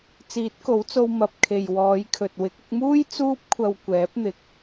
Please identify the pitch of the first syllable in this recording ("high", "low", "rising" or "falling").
rising